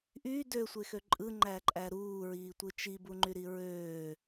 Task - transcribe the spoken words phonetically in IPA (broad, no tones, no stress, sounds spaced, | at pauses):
ʔ y d ø sʷ e x ø ǃʼ ɯ ŋ͡ǃ æ ǃʼ æ ɾ uː ɹ iː tʷ ɯ t͡ʃ i b u ŋ͡ǃ y ɾ i ɹ øː